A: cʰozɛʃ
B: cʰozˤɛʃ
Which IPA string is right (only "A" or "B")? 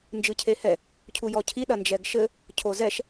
A